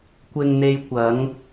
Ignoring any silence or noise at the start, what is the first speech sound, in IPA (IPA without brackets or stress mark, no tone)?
kʷ